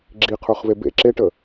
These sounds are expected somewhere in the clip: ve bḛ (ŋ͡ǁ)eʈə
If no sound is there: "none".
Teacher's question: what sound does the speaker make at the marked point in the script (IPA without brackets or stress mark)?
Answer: ǁ